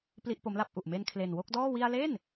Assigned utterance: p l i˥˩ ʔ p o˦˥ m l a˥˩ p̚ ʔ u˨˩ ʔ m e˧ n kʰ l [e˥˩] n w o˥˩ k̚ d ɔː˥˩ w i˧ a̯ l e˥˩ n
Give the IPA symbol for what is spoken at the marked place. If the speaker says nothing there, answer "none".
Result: e˨˩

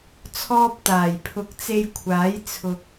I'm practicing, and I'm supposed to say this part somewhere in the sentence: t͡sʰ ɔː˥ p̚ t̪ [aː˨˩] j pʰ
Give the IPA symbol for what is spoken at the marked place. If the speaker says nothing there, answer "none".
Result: aː˨˩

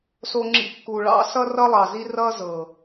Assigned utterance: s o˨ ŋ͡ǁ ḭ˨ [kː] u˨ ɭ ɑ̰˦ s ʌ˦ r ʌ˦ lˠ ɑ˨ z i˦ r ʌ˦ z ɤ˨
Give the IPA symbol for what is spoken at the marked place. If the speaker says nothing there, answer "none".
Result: kː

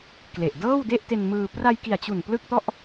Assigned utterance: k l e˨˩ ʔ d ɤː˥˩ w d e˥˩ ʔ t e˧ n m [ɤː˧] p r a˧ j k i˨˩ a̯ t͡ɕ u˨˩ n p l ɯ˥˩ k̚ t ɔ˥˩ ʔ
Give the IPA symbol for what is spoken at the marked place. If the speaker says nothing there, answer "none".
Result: ɯː˧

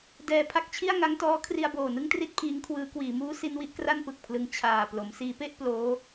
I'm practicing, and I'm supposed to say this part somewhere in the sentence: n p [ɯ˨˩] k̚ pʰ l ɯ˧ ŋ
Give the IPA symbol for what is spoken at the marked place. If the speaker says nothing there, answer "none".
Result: ɯ˨˩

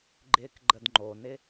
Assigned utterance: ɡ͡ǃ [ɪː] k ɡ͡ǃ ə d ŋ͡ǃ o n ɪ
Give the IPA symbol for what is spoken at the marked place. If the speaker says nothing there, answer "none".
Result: ɪː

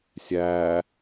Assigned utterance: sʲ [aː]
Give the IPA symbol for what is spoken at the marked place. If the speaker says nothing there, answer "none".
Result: æː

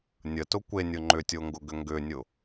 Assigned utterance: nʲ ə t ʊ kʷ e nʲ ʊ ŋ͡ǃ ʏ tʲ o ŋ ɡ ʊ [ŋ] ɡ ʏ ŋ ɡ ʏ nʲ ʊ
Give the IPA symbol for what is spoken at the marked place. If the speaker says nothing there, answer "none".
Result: none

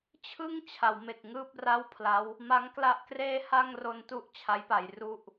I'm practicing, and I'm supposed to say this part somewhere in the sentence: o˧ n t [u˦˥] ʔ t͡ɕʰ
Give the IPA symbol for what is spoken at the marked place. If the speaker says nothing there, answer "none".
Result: u˦˥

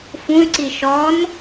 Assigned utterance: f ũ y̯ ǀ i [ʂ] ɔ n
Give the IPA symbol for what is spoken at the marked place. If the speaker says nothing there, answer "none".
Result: ʃ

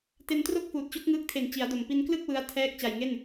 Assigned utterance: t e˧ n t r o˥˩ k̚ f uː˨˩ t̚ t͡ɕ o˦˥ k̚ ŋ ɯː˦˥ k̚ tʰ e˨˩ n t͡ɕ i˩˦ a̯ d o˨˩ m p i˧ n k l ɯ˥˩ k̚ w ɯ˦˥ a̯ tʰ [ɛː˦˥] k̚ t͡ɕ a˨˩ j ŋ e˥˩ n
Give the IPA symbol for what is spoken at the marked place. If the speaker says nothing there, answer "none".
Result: ɛː˦˥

